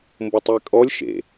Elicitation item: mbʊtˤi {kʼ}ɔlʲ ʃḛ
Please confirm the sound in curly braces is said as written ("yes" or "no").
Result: yes